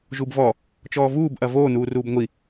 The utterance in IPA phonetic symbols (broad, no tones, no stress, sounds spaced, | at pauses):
ʒ u b v ɔ | t͡ʃ ɔː v uː b ʔ ɐ v oː n uː r uː b ŋʷ i